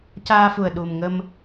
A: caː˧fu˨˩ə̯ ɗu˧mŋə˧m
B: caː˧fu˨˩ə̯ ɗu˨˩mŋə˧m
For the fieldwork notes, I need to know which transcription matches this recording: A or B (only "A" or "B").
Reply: B